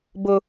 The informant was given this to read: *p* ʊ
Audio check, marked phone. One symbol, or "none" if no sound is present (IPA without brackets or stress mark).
b